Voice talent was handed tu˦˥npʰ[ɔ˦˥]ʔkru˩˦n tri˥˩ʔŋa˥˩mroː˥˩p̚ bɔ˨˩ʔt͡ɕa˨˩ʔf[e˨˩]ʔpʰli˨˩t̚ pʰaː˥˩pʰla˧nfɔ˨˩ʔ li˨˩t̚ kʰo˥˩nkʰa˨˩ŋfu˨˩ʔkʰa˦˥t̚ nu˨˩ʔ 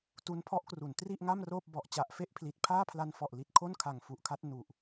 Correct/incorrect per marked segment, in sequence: correct, incorrect: e˥˩

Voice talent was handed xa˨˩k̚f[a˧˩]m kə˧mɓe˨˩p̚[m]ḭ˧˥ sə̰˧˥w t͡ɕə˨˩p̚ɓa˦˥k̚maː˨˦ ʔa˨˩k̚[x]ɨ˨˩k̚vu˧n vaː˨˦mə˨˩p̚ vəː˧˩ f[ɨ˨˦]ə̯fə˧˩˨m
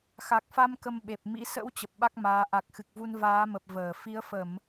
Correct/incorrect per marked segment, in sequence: incorrect: a˧, correct, correct, incorrect: i˨˦

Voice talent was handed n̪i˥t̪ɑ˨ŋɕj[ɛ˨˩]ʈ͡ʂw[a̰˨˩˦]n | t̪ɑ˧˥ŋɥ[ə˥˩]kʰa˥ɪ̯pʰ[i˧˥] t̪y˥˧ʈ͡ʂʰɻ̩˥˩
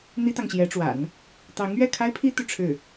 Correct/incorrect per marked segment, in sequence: incorrect: ɛ˧˥, correct, incorrect: ɛ˥˩, incorrect: i˥

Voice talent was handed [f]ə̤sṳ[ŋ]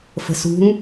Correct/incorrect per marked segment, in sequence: correct, correct

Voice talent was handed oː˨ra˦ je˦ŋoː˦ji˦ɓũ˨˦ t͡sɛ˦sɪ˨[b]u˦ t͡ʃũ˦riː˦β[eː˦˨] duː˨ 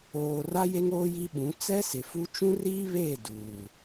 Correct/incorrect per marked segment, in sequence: incorrect: f, correct

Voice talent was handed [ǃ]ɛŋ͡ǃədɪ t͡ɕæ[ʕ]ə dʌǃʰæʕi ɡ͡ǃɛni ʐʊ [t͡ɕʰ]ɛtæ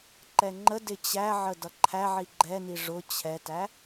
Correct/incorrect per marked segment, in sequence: correct, correct, correct

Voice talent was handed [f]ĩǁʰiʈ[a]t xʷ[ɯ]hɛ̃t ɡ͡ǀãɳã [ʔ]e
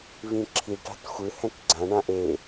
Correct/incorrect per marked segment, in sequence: incorrect: v, incorrect: a̤, correct, correct

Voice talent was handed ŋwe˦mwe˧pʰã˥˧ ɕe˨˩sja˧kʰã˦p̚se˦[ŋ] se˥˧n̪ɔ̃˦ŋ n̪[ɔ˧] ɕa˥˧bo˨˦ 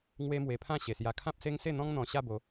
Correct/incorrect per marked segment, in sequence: correct, incorrect: ɔ̃˧

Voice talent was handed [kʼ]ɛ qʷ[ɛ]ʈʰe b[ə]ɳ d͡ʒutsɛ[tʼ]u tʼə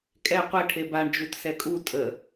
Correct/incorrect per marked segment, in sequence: correct, correct, incorrect: a, incorrect: kʼ

